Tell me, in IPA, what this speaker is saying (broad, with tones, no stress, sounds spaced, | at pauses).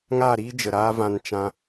ŋ a˦˨ ɾ iː˦ d͡ʒ ə˨ ɾ aː˦ v ã˧ n t͡ʃ ã˧